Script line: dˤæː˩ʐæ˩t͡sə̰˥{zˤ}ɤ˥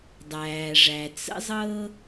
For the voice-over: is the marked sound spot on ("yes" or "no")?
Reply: yes